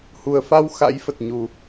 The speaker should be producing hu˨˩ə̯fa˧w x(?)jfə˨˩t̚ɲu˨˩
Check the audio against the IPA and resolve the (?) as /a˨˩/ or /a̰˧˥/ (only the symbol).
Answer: a̰˧˥